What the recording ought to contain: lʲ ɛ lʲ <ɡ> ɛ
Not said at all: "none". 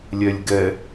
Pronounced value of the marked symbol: ɡ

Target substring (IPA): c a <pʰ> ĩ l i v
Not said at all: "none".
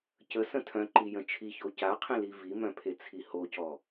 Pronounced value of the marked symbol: qʰ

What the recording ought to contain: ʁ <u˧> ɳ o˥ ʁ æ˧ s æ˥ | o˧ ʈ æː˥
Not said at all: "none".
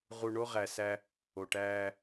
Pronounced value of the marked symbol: u˧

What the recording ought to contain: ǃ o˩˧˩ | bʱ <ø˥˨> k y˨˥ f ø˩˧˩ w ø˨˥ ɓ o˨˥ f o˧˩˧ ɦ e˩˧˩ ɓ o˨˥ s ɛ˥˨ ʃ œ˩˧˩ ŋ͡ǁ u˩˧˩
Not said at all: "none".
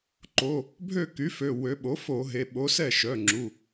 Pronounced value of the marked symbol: ø˥˨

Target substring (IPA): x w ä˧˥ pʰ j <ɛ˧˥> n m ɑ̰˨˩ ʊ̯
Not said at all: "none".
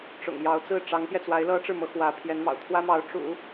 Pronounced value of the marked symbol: ɛ˧˥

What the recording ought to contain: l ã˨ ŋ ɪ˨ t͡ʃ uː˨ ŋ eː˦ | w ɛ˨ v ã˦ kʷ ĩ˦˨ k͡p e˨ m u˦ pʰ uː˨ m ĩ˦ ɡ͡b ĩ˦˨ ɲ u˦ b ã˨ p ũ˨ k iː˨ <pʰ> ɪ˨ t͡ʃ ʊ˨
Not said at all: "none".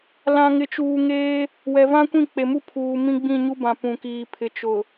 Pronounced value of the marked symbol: pʰ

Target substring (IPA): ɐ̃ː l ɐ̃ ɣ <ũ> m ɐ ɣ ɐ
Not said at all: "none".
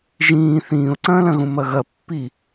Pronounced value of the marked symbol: ũ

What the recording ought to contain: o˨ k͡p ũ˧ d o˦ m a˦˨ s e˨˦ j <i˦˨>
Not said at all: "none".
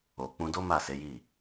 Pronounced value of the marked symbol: i˦˨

